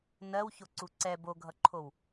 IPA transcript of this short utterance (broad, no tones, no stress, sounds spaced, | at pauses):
n ɜ w ç o ǀ u ǀ ɛ b o ɡʱ ʌ ǃʰ o w